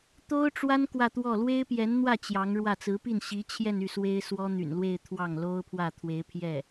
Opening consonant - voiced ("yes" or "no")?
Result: no